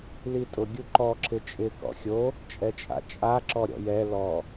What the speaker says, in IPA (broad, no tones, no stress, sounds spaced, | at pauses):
l i tʼ ʊ ɡʲ u ǃ ɔ ǁ ɪ t͡ʃʼ ɪ k ɔ̰ xʲ o | t͡ʃʼ ɛ t͡ʃʼ a̰ t͡ʃʼ a ǁ ɔ ɾʲ ɔ̰ j ɛ l ɔ